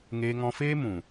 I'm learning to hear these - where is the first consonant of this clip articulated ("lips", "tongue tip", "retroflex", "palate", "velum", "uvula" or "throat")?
velum